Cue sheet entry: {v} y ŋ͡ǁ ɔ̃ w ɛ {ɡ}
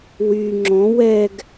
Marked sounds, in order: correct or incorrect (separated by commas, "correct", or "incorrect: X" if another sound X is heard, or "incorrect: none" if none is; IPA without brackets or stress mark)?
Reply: incorrect: w, correct